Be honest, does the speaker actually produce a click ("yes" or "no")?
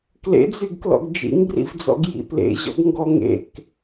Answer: no